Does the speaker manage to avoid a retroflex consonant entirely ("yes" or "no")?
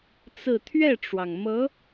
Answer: no